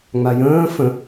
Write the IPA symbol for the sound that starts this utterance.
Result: ŋ͡m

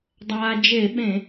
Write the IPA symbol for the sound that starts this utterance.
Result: dˤ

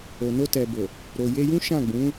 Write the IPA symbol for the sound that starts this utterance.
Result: o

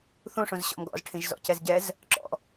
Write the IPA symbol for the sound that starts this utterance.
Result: θ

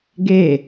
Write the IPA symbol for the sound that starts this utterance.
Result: ɡ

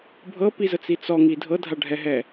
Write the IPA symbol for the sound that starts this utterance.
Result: bʱ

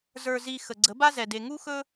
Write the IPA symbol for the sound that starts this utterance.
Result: z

